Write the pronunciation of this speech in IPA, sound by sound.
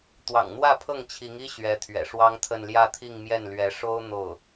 t̪ w ɑ̰˨˩ ŋ n̪ w ä˥˧ pʰ ɤ˥˩ ŋ t͡ɕʰ i˧˥ ŋ i˥ ɕ ɥ ɛ˧˥ t̪ʰ ɥ ɛ̰˨˩ ʂ w ɑ˥ ŋ t̪ʰ ə˥˧ n l j ä˥˧ t̪ʰ i˥˧ ŋ m j ɛ˥˩ n l ɥ ɛ˧˥ ʂ o˥ ʊ̯ n̪ o˥˩ ʊ̯

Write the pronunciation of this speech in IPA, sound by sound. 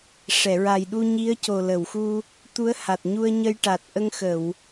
ʂ ɛ˨˩˨ ɹ a˨˩ j ɗ u˧ ɲ i˧˥ ə̯ c o˨˩ l ə˨˩˨ w x u˧ | t̪ u˧˥ ə̯ h a˨˩ t̚ ɲ u˧ ə̯ ɲ ə˧ j ʈ a˨˩ t̚ ʔ ə˧ ŋ x ə˨˩˨ w

